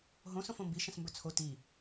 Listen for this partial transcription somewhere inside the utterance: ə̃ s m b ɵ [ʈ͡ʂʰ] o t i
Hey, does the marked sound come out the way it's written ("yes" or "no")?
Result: no